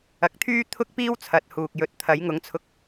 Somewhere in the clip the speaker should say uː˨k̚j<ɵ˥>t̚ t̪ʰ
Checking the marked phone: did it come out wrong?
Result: yes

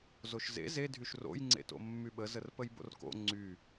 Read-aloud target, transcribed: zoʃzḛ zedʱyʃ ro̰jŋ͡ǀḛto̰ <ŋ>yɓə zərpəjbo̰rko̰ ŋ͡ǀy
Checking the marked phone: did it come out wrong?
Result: yes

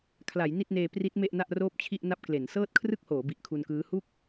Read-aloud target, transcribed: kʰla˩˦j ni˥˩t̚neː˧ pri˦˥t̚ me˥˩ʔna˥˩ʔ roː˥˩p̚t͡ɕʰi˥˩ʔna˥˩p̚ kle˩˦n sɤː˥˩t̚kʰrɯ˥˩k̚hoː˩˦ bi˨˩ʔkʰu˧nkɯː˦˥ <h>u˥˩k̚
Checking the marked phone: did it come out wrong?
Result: no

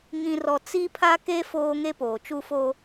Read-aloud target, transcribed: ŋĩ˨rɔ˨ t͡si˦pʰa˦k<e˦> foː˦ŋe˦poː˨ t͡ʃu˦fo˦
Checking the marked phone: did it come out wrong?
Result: no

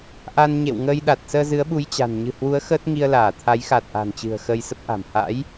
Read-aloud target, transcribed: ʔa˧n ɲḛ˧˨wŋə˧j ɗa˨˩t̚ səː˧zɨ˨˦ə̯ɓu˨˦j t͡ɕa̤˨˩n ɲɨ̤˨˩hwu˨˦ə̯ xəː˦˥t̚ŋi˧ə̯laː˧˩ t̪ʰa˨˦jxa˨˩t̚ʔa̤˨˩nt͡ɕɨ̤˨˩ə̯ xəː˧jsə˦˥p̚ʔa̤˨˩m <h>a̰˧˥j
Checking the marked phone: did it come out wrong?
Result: no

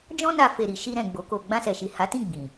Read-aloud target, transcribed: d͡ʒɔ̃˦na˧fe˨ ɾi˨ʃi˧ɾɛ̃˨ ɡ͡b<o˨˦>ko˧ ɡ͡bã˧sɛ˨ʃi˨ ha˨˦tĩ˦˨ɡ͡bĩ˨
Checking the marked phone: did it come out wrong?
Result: no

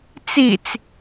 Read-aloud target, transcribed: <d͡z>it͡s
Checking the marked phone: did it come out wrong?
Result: yes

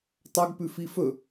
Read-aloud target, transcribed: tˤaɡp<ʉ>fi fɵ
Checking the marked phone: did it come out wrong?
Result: no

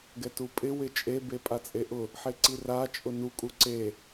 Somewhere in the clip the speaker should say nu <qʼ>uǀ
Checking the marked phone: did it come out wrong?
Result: yes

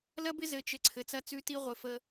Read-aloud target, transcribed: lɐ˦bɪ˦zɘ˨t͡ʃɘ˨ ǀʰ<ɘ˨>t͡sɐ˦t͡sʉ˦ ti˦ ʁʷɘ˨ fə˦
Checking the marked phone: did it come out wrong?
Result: no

